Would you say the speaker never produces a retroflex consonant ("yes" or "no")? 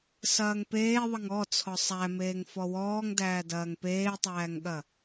yes